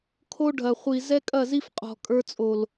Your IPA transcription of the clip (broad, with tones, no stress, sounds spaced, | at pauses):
kʰ o˦ ɖʱ ɐ˨ χʷ i˨ z ɛ˦ kʼ ɐ˦˨ z i˦ f qʼ ɔ̤˨ kʼ ə˞˦ t͡sʼ o˨ l